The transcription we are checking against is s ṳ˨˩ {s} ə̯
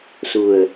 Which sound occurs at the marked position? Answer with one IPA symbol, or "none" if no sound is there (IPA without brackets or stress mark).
none